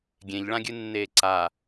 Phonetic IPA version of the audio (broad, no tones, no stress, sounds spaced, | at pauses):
ɡʲ ẽ ʎ ɭ ã ɡʲ ɨ nː eː ǀ a